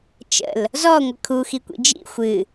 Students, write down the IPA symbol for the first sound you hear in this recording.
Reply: t͡ʃ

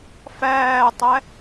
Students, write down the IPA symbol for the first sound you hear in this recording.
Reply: f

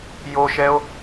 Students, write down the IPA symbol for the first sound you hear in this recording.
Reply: j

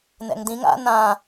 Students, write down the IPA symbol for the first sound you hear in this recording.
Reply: n̪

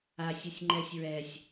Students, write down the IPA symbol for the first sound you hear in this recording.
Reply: a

